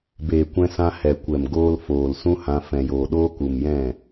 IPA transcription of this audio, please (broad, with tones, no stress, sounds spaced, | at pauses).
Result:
b eː˨ kʷ ɛ̃˧ s ã˧ h ɛ˨ kʷ ɛ˨ m ɡ oː˧ l f oː˨ l s ũ˦ h ã˧ f ɛ̃˨ j oː˨ ɗ oː˦ k u˨ m j ɛ̃˦˨